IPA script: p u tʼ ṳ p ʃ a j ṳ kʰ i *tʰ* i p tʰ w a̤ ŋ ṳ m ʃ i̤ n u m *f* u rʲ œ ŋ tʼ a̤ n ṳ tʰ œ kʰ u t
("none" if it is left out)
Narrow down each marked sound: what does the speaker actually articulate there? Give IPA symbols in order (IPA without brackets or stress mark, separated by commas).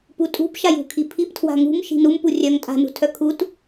pʰ, p